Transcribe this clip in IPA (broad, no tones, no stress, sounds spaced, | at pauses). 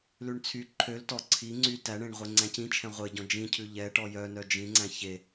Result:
l ʉ ɳ t͡sʰ y ǃʰ ø l t ɔ ǀʰ i ŋ͡ǀ y t æ ɳ ẽ ɳ ʁʷ e ŋ͡ǀ æ̃ c ĩ t͡ʃʰ ɛ̃ ʁʷ e ɟ ɔ̃ d͡ʒ ĩ cʰ ʉ ʎ ɛ ʈ ɔ j œ n œ d͡ʒ ĩ ŋ͡ǀ æ̃ ç e